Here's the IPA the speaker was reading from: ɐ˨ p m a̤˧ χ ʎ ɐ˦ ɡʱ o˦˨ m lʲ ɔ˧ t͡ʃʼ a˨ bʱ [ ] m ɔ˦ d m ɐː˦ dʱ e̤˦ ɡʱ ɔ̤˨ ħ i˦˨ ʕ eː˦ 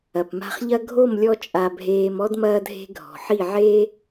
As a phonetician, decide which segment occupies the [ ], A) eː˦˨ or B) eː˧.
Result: B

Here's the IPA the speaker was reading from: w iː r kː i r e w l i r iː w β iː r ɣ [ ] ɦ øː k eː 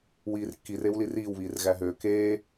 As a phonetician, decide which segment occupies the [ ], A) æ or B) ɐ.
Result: A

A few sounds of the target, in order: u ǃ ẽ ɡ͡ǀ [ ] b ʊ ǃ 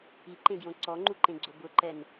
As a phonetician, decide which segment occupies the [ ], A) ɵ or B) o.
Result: B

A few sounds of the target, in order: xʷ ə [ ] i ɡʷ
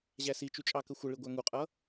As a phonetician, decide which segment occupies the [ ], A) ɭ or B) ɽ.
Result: A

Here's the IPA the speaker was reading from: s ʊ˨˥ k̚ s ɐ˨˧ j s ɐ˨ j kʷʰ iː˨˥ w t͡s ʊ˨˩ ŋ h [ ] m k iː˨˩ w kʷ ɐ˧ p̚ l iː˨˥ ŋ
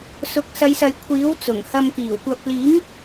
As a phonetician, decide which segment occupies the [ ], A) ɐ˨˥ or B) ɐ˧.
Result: B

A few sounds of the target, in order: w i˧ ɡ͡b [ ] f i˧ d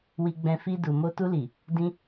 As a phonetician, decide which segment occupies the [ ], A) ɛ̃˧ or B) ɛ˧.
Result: A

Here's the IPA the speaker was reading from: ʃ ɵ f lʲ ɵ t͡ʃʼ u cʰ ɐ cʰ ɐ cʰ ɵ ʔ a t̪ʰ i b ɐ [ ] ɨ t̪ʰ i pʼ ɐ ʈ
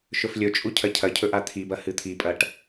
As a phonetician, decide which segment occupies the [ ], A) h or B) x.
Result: A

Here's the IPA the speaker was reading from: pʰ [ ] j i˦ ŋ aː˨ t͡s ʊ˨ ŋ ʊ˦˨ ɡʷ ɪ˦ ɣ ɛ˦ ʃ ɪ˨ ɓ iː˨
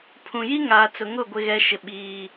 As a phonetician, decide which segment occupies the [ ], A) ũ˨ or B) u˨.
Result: A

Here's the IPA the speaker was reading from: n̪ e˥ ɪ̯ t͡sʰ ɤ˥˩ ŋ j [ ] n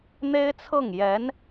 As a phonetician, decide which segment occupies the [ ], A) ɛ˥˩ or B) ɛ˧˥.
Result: B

